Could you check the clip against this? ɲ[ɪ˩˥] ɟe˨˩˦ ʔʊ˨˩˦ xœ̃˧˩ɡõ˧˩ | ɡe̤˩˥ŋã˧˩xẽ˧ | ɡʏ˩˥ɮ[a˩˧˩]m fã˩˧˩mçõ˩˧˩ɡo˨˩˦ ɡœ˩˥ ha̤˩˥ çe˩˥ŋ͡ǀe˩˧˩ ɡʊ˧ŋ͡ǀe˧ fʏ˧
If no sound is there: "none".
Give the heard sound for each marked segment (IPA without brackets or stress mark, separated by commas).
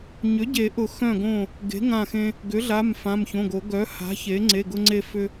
ʏ˩˥, a˩˧˩